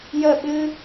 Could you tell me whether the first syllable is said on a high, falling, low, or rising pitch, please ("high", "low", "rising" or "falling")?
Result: falling